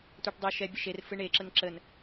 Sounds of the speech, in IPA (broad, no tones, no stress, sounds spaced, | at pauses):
tʷ e ʈ dˤ o ʃ ɛ bʲ ə ʃ e r f ɯ ɳ e ǁ ə n ǁ ə n